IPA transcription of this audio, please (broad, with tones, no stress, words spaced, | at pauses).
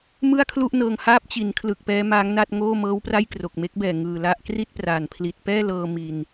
mɯ˥˩a̯kʰlu˥˩ʔnɤː˧ŋ haː˦˥p̚t͡ɕi˩˦nkʰlɯ˨˩k̚ pɛː˦˥maː˦˥ŋna˥˩t̚ŋoː˥˩ mɤː˦˥wpra˥˩j kro˨˩k̚me˦˥k̚bɛː˨˩ ŋɯː˨˩la˦˥ʔ kri˥˩t̚praː˨˩n pʰli˨˩t̚pɛː˥˩lɤː˧ mi˧n